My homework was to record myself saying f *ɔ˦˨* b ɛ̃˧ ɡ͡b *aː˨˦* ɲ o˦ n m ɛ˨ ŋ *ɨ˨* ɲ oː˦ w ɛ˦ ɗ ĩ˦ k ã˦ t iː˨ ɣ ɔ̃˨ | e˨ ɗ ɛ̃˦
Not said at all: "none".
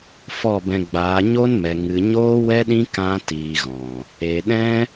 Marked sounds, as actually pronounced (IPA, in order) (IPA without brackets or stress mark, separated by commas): ɔ˦˨, aː˨˦, ɨ˨